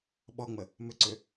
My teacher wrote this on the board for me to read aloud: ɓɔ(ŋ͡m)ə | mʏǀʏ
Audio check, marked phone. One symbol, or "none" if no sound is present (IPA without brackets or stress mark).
ŋ͡m